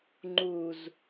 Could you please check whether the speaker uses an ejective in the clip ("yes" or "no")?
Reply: no